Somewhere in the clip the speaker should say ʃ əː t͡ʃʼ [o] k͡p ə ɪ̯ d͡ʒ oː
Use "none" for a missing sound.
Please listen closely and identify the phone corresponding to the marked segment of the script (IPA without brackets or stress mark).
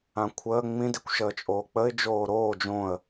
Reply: oː